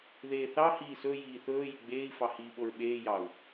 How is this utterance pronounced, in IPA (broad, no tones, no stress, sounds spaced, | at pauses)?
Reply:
ð eː θ ɑ h iː s ɵ j iː θ ɵː j y ɡ͡b eː i̯ f ɑ h iː ɓ o ɹ ɓ eː j ɑ u̯